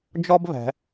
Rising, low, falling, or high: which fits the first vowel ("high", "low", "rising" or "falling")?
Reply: high